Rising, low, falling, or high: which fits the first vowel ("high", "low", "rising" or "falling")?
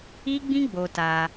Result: high